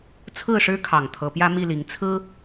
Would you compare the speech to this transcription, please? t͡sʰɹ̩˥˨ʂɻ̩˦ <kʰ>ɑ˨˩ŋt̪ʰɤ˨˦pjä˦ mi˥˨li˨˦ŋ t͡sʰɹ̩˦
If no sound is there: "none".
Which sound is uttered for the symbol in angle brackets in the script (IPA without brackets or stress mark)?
kʰ